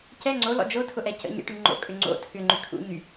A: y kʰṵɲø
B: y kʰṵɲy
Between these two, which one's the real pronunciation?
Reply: B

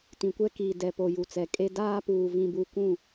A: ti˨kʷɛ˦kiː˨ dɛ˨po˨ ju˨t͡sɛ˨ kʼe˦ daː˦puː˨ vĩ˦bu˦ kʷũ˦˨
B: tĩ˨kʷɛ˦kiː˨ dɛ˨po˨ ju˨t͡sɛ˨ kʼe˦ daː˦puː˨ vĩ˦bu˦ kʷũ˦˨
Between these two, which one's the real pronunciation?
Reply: B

